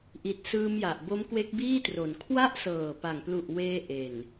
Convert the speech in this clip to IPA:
ʔi˨˩t̚sɯː˧mja˨˩ʔ bo˦˥mkwe˦˥k̚biː˥˩tro˨˩n kʰwa˦˥ʔsɤː˨˩ pa˨˩ŋplu˨˩ʔ weː˧ ʔe˨˩n

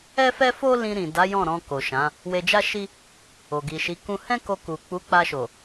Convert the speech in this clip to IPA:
ɛ˦fɛ˦fo˦ lĩ˧ɾĩ˨da˨˦ jɔ̃˦˨ɾɔ̃˧ko˨ʃã˨˦ | we˧d͡ʒa˦ʃi˦ | o˨ɡi˨ʃi˨˦ kũ˧hɛ̃˦ ko˧ku˨ k͡pu˨˦k͡pa˧ʃo˨

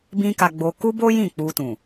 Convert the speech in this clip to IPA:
bĩ˦ka˧ɡ͡bo˧ ku˦bo˦ jĩ˦˨k͡pu˧tũ˨

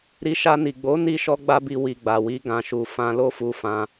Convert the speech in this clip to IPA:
ɾi˧ʃa˧ni˨ ɡ͡bo˨˦ ni˧ ʃɔ˦ɡ͡ba˦bi˧ wi˨ɡ͡ba˨wi˧ ɡã˨ʃu˨ fã˧lo˦fu˧fã˧

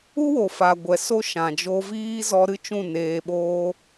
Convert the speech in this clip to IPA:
u˦wo˨fa˨ ɡʷɛ˨so˦ ʃã˨d͡ʒo˧viː˦ zɔ˧ɾɨ˦t͡ʃũ˦˨ neː˧ɓoː˦

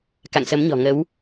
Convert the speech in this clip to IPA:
ka̰˧˨ŋsə˨˦mɲɔ̤˨˩ŋə˨˦w

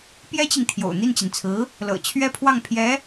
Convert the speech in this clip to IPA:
pjɛ˥t͡ɕi˨ŋt̪ʰjo̰˨˩ʊ̯ n̪i˥˩nt͡ɕi˩nt͡sʰɹ̩˧˥ | lɤ̰˨˩ t͡ɕʰɥɛ˥pʰwɑ˥˩ŋpʰjɛ˧˥

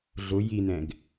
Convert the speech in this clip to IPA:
ɮʊ jinɛ̃ɡ

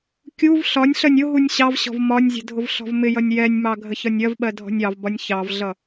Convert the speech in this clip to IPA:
kʲuv ɬɒnʲ ɬɜnʲʊɦunʲ ɕɑv ɕɔ̤vmɒnʲzʲə̤ dʱʊvɬɔ̤vmɪjʌnʲ jɛnʲmɑ ɡʱəçɒnʲɜvɓɜ dʱɔ̤nʲɑvbɒnʲ çɑvɮʌ

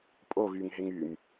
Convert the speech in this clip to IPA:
pʼoɣyŋɦeŋ ym

